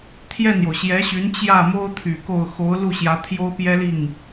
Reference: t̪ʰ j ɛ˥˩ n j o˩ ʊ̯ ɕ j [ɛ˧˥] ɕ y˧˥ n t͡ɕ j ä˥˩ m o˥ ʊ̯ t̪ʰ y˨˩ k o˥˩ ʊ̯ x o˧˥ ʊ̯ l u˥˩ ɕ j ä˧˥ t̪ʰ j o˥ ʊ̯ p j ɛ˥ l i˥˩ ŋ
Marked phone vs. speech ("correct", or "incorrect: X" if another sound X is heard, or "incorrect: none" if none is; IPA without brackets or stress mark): correct